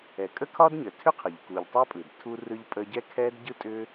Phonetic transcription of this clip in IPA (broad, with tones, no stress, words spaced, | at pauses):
ɛ˩kʼə˥kʰɒ˥dɲə˩ tʰʏ˥qʰə˩ʎ ku˩ʎ tˤa˥pʼɯ˩d tʰu˥rɯ˥ʎpʼə˥ ɟɛ˥kʰɛ˥d ɟɯ˥tʼʏ˥